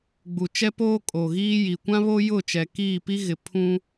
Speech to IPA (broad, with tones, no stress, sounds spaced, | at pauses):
ɡ͡b u˨ t͡ʃ ɛ˦ p oː˦ kʼ o˨ ɣ iː˦ j i˨ kʷ ã˦ β o˦ j ʊ˦˨ t͡ʃ ɛ˨ k iː˦˨ p i˦ ɣ ɪ˨ pʰ ũ˦